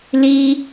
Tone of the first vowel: high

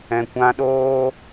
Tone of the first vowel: low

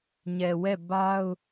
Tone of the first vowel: low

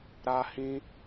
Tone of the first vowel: high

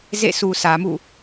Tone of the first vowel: falling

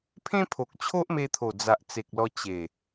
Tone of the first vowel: high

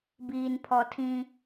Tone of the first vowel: low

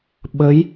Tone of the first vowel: rising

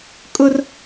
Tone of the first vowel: high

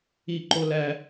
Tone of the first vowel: falling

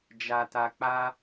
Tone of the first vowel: low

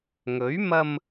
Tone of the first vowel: rising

